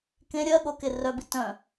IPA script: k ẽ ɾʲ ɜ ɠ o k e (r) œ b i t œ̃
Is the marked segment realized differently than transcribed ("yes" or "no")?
no